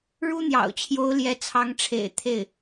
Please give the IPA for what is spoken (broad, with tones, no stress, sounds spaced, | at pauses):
ɻ u˥ n̪ j ɑ̰˨˩ ʊ̯ t͡ɕʰ j o˧˥ ʊ̯ l j ɛ˧˥ t͡sʰ ɑ˧˥ ŋ ʈ͡ʂʰ ḛ˨˩ ɪ̯ t̪ʰ e˥˩ ɪ̯